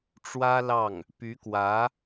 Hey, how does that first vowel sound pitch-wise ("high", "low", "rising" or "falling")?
high